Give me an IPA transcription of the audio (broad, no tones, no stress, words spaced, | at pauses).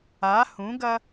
a hũɡɐ